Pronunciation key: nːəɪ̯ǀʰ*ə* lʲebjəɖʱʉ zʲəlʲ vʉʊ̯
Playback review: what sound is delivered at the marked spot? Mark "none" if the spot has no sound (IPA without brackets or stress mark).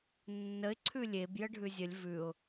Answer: ʉ